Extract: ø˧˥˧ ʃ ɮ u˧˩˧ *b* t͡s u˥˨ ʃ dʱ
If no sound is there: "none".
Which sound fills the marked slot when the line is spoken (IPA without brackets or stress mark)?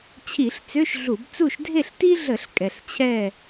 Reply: b